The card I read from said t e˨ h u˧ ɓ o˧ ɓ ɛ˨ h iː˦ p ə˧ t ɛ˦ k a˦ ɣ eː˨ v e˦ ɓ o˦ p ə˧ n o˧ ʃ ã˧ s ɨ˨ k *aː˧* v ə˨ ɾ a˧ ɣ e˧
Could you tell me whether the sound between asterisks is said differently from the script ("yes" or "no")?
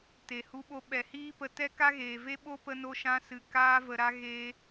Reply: no